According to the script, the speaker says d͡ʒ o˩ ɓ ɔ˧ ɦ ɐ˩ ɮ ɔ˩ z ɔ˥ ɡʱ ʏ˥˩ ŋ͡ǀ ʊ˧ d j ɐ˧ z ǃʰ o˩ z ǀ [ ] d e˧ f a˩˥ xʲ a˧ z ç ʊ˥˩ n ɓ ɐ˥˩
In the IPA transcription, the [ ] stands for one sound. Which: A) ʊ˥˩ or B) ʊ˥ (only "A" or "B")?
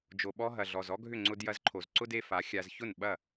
B